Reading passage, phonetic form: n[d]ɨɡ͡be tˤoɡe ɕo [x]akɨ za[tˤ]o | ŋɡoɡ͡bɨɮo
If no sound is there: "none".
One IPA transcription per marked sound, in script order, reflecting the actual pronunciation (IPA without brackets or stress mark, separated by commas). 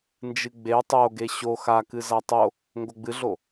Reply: d͡ʒ, x, tˤ